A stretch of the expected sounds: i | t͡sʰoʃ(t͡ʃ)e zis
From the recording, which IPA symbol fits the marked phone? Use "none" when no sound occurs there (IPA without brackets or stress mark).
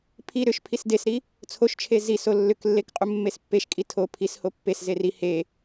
t͡ʃʰ